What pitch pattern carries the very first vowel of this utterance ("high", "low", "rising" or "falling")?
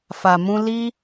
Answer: low